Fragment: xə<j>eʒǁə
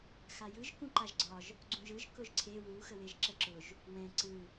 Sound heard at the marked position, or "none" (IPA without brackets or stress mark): w